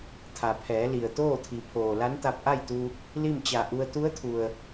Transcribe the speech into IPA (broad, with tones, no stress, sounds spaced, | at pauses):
t̪ʰ a˩ pʰ ɛː˩˧ l i˩ ə̯ t̪ oː˥˨ t̪ʰ i˩˧ pʰ oː˩ l a˧˥ n t̪ a˧ p̚ ʔ a˥˨ j t̪ u˧ | l i˥˨ m t͡ɕ a˧˩ ʔ u˧ ə̯ t̪ u˧˥ ə̯ t̪ʰ u˩ ə̯